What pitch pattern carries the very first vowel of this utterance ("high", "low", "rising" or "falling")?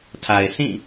low